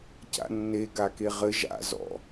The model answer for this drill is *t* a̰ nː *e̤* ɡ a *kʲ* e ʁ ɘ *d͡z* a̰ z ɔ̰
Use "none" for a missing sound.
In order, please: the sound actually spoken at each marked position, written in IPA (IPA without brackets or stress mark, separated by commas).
c, e, k, ʒ